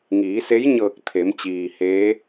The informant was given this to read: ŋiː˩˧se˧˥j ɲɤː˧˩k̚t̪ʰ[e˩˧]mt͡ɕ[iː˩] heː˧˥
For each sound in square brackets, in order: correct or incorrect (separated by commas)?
correct, correct